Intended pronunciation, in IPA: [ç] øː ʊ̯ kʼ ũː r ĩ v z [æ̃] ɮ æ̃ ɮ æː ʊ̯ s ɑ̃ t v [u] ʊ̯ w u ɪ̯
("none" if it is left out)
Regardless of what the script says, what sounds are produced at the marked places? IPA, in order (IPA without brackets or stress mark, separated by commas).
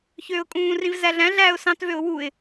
ç, æ, ø